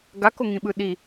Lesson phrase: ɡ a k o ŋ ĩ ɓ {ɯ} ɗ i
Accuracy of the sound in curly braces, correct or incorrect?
correct